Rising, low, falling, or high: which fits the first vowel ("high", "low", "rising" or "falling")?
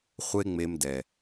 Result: high